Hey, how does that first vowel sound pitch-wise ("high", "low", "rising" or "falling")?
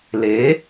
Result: rising